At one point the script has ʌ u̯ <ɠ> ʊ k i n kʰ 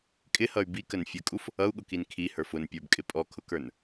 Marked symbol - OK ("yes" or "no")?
yes